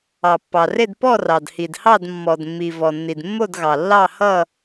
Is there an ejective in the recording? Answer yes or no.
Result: no